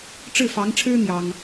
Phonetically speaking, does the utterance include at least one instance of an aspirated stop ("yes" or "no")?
yes